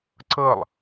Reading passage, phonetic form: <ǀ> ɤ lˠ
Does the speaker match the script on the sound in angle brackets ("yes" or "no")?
yes